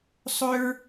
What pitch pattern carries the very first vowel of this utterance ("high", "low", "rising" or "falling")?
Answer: high